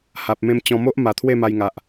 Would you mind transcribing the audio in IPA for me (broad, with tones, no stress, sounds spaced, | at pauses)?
h a˨ p̚ m ẽ˧ m t͡ɕ ɔ̃˧ m o˦ ʔ m a˨˩ t̪ʰ w e˥˧ m a˧ j ŋ a˨ ʔ